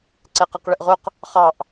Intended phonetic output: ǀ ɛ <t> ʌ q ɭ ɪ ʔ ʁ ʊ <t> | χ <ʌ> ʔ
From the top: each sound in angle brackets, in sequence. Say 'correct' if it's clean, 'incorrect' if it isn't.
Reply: incorrect, incorrect, incorrect

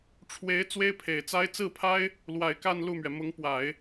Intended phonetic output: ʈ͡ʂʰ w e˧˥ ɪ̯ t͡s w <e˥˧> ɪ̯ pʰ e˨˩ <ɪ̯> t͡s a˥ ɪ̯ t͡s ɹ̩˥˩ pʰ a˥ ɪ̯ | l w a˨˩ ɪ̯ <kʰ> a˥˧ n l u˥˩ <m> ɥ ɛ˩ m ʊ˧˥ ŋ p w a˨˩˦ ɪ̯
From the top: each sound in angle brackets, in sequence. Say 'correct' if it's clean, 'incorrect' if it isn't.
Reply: incorrect, correct, incorrect, correct

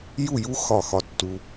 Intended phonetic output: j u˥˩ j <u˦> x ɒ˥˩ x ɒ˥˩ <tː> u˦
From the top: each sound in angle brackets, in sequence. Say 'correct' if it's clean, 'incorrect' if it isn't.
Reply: correct, correct

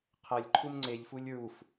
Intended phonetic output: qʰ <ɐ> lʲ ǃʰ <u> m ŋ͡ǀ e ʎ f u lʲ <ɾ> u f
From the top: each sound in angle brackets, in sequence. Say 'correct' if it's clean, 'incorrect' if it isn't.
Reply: correct, correct, incorrect

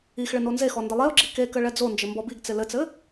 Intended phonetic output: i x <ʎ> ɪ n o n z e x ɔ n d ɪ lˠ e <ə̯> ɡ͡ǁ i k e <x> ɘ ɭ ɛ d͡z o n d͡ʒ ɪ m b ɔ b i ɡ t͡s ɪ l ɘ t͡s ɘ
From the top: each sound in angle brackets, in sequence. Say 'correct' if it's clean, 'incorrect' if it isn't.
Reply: incorrect, incorrect, incorrect

